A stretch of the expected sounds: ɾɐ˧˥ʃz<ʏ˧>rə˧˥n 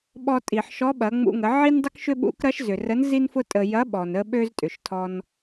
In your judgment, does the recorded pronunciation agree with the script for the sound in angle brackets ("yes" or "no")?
no